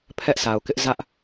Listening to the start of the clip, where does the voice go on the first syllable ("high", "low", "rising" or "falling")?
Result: high